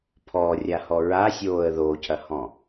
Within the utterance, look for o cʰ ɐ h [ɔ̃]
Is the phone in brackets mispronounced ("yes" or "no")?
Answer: no